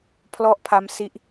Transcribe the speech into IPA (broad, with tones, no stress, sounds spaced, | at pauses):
pʰ l ɔ˥˩ ʔ pʰ a˦˥ m s i˦˥ ʔ